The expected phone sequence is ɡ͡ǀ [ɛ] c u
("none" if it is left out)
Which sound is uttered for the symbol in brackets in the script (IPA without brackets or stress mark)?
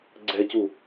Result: ɛ